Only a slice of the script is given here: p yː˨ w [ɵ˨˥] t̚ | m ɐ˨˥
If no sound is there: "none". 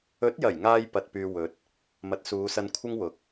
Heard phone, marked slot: ɵ˨˥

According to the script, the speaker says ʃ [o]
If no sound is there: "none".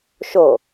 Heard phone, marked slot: o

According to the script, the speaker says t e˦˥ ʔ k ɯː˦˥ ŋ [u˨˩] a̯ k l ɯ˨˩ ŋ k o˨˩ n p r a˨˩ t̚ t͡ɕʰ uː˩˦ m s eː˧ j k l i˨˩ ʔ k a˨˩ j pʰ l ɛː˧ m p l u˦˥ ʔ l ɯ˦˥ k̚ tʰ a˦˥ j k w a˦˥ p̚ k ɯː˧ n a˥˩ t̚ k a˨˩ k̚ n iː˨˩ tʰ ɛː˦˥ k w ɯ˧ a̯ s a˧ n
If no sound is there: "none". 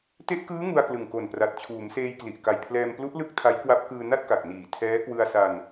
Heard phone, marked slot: u˧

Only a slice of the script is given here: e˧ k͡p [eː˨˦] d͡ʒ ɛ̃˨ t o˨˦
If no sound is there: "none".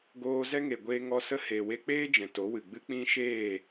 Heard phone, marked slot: eː˦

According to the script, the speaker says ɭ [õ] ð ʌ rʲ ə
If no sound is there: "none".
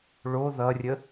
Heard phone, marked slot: o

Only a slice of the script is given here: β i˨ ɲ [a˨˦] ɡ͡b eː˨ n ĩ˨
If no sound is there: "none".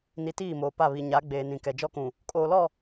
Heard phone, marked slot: a˨˦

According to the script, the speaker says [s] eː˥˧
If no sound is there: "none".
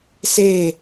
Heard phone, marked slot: s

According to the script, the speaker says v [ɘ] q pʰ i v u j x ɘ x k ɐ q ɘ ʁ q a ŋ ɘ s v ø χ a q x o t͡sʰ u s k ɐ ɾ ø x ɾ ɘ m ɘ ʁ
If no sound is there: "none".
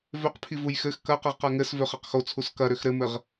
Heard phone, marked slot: ø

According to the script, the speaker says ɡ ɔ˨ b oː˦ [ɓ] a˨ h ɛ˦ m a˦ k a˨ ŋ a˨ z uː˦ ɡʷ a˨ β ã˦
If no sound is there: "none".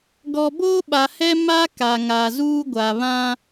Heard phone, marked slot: ɓ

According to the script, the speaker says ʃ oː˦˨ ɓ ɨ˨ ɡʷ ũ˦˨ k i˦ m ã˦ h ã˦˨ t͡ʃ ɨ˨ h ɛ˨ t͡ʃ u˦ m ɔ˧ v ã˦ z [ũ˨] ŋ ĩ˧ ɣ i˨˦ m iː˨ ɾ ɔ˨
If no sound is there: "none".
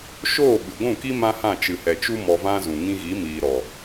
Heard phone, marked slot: ũ˨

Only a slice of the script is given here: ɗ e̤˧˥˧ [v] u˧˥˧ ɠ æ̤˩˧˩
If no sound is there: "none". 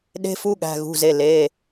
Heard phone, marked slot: f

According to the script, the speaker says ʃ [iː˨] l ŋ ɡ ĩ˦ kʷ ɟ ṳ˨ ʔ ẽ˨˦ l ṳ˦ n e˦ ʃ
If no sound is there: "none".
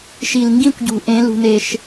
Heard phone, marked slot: i˨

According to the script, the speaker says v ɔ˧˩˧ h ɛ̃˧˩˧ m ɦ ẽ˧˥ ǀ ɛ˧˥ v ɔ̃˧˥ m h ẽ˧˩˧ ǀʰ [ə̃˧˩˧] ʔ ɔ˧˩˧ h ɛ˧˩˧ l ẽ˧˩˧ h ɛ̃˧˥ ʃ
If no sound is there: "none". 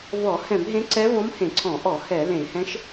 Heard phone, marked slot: ɔ̃˧˩˧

